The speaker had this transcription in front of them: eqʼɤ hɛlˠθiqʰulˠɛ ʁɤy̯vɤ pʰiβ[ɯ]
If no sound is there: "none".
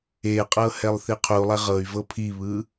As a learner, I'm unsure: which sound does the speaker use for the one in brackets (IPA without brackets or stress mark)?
ɯ